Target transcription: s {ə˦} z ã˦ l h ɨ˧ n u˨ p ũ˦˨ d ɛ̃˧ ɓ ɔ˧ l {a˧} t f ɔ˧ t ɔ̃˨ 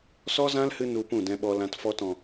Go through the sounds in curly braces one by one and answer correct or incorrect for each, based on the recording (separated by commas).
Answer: incorrect, incorrect